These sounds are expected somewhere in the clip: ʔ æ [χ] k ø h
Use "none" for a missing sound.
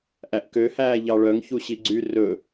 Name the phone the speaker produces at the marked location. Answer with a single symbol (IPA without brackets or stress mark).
ʔ